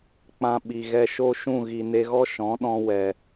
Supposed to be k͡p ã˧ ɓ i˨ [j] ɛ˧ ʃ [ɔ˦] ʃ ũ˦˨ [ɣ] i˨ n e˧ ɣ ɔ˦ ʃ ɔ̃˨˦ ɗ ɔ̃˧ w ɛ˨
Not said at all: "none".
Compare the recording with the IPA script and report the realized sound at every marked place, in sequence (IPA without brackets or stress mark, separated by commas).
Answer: ɣ, o˦, ɣ